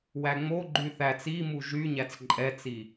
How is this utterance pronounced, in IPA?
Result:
w æ ŋ͡m o ɡ͡ǃ y θ æ t͡s i m u ʒ y ɲ æ t͡s ǃʼ ɛ t͡s i

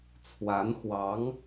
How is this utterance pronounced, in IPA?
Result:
t͡sʰ w a˧˥ n x w ɑ˧˥ ŋ

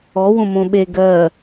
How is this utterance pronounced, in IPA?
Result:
ɔ w õ m õ ɓ e ɡ ɜ

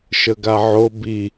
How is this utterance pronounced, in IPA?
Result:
ʃ ə ɡ a ʕ o b i

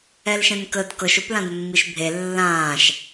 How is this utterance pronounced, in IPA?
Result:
ɛ l ʃ ɛ̃ n k ə d k ɤ ʃ o p l ã d mː i ʃ bʱ e lː ãː ʃ

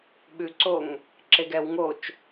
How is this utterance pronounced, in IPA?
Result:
ɓ ʉ ǀ o ŋ | ǁ e ɡ ɛ w ŋ o t͡ʃ

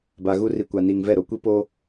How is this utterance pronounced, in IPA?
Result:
b a˨ ɣ u˦ r i˨ kʷ a˨ n iː˨ ŋ v ɛ˦˨ ɾ o˨˦ kʷ i˦ p o˦

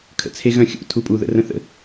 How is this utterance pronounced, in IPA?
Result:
kʰ ə̰ t͡sʰ e ɣ œ̃ xʲ ṵ tʰ u pʼ u ð ə̰ r ə̃ θ ə̰

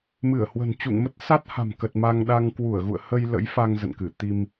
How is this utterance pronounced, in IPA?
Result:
m ɨ˧˩ ə̯ h w ə̤˨˩ n t͡ɕ ṵ˧˨ ŋ m ə˦˥ t̚ s a˦˥ t̚ h a̤˨˩ m k ə˨˩ t̚ m a˧ ŋ ɗ a˧ ŋ k w u˧˩ ə̯ ɣ ṵ˧˨ ə̯ h ə˧ j l ə̰˧˥ j f a˧ ŋ z ə̰˧˨ n k ɨ˧˩ t̪ i˧ m

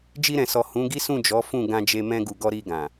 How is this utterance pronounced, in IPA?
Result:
d͡ʒ i˧ ɾ ɛ̃˨ s ɔ˨ h ũ˨˦ ɡ i˦ s ũ˦˨ d͡ʒ ɔ˨˦ f ũ˦˨ ɡ ã˧ d͡ʒ e˧ m ɛ̃˧ ɡ u˨ ɡ ɔ˧ ɾ i˧ ɡ ã˨

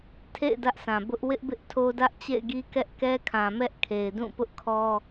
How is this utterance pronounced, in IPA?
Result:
tʰ ḛ˦˨ ɪ̯ d ä˦ ʔ s ã˨ b ʊ˦ ʔ w ɪ˦ ʔ b ɪ˦ ʔ tʰ o˦ d ä˦ ʔ t͡ɕ ḛ˦˨ ɪ̯ ɡ i˦ k ɛ˦ ʔ k ɛ˦ kʰ ã˨ m ɛ˦ ʔ kʰ e˨ ɪ̯ d ũ˦˨ p ʊ˦ ʔ kʰ ɔ˦

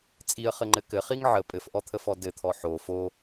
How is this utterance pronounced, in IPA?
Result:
t͡sʼ i ə̯ χ ɘ ŋ͡ǃ ɘ k ɘ χ i ŋ ʕ ə pʼ ɘ f ʔ ɔ t̪ʰ ə f ɔ d ɘ t̪ʰ ɔ ħ o f o

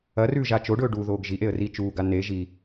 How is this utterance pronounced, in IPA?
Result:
ɐ r ʉ ʒ a t͡ʃ o ɖ ɵː ɖ u ð oː ɡ ʒ i ʔ e ə̯ r i t͡ʃ uː ɡ a n e ʒ i

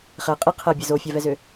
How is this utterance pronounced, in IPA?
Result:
χ ɛ qʼ i qʰ ɛ bʲ ɛ z o fʲ a v ɛ z ø

